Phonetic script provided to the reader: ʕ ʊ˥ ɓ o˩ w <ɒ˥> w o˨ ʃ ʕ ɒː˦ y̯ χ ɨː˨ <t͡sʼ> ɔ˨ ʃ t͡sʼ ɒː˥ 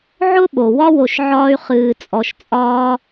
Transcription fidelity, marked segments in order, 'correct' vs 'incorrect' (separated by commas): correct, correct